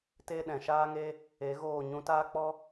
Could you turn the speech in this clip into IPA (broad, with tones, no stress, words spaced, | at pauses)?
te˦ɗɛ̃˨ʃaː˦ŋe˦ | e˨˦ɣoː˦˨ ɲũ˧taː˦k͡pɔ˦